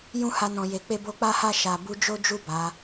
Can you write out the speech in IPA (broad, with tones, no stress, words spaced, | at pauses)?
jũ˦ha˧nɔ̃˨je˨ k͡pe˧bo˧k͡pa˦ha˦˨ ʃa˨ bu˧d͡ʒo˦d͡ʒu˦˨ ba˨˦